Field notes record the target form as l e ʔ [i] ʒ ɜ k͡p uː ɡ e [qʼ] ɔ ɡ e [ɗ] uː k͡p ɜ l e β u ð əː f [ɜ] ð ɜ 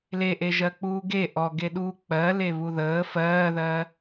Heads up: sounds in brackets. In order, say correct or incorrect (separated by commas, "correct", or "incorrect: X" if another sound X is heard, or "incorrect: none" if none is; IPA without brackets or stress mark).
incorrect: e, incorrect: ʔ, correct, incorrect: ɜː